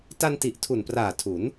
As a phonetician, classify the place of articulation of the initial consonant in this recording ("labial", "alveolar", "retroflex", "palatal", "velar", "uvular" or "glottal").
alveolar